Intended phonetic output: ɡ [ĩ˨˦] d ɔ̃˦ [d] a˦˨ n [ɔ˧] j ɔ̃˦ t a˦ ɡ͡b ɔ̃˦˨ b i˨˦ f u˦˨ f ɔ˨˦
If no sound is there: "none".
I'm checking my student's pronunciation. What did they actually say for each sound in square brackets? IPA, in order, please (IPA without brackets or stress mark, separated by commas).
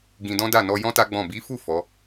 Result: ĩ˧, d, ɔ˧